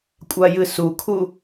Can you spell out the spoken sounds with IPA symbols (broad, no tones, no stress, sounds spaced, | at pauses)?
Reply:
kʷʼ a j ɨ s u kʰ u